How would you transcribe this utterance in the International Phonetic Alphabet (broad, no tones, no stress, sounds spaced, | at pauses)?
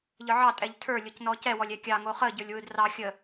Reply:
ʎ ɯ ʕ ɑ tʼ ɛ ʎ tʰ ə˞ lʲ o c n ɔ c ɛ w ɔ lʲ ɛ kʲ ɑ ŋ o χ ə ɟ ə˞ lʲ w ɯ d r ɑ xʲ ə